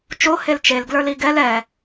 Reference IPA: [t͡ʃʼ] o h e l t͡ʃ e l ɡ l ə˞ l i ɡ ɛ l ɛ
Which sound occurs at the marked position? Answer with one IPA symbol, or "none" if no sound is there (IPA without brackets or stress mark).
t͡ʃ